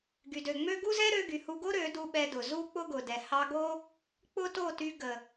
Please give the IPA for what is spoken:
ɡ y˨ d ø˨ ŋ͡m ø˦ ɡ u˦ z ɛ˦ ɾ ø˧ ɡ y˨ h u˧ ɡ o˦ ɾ ø˨˦ d u˧ ɓ ɛ˧ d ʊ˨ z u˦ k͡p ʊ˦ ɡ ʊ˨ d ɛ˨ h ɑ˧ ɡ o˦ | k͡p ʊ˦ t o˦˨ t y˧ ɡ ə˨

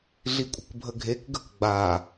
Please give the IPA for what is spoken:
ɮ i kʷʼ ə̤ k bʱ ə ɡʱ e k ɡ ə k ɡ͡b a

